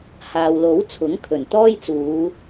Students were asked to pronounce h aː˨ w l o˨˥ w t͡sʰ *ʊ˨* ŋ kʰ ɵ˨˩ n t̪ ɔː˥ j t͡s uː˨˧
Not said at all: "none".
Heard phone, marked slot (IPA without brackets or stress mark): ʊ˨˥